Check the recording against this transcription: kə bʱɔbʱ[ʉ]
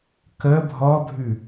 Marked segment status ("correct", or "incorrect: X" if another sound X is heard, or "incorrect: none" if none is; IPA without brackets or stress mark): correct